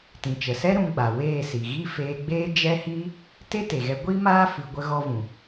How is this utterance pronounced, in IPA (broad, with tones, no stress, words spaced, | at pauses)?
tĩ˨t͡ʃə˨sɛ˦ ɾũ˧ɡ͡ba˨weː˦˨si˨ ɣi˦feː˧ɡ͡beː˦ d͡ʒɛ˦hiː˦ | te˦te˨ɣɛ˧ ɡʷi˦maː˦ fɨ˧ ɡʷə˦ɣɔ˦vũ˨